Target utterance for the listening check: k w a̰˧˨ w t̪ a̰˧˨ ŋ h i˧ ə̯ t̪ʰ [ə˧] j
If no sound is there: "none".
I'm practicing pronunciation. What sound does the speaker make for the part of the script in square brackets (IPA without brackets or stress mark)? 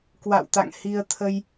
ə˧